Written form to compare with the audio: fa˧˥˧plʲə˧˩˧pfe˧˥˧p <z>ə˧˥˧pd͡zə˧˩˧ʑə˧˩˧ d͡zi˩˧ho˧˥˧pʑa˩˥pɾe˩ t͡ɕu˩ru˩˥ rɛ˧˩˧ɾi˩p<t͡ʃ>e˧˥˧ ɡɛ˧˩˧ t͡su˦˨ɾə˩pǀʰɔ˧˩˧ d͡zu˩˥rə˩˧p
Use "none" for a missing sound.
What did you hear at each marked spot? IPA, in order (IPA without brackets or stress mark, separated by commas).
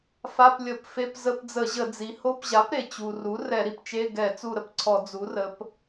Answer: z, t͡ʃ